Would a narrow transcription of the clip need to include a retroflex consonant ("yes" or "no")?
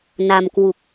no